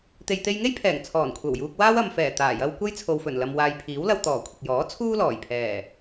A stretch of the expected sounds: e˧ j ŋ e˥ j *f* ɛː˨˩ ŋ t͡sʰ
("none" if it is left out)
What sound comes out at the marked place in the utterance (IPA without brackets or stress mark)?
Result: pʰ